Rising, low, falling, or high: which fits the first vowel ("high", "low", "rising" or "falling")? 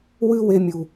high